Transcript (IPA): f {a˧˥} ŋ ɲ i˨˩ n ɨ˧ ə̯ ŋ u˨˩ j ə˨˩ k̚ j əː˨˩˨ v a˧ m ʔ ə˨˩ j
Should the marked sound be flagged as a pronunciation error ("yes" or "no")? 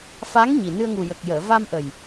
no